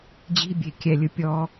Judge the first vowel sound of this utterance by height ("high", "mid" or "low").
high